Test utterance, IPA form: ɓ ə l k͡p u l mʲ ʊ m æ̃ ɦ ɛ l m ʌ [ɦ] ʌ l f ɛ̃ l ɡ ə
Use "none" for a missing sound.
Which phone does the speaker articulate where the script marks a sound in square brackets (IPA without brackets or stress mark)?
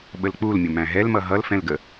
ɦ